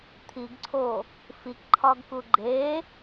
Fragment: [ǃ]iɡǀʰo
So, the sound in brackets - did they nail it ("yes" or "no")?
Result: no